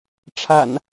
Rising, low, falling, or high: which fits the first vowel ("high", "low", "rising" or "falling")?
low